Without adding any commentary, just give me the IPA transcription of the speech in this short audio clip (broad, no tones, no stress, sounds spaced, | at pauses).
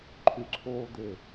ǃʰ y ǀʰ o d̪ e